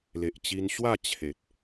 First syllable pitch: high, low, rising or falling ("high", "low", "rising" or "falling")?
low